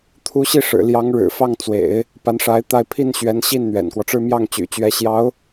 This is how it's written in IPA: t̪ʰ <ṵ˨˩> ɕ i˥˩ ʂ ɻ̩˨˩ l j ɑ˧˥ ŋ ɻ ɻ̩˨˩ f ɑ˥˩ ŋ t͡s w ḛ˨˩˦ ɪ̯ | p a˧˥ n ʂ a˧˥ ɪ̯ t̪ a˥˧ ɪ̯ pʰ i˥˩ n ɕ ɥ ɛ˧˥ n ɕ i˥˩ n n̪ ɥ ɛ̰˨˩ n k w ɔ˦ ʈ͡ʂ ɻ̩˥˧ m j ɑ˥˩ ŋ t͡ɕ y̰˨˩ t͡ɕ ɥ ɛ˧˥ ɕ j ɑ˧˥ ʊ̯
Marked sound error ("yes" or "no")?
yes